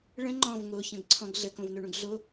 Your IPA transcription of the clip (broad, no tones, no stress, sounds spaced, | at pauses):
ɭ ə̃ ŋ͡ǃ ɔ̃ v ŋ o ç ə̃ ɡ ǀʰ ɔ̃ ɡ ɮ ə k õ v n o ɳ ũ ɡ ɮ o